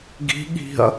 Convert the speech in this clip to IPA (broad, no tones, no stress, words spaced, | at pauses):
ɡi̤ ɠi̤ɐ̯